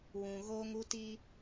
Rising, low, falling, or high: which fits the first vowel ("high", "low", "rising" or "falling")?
low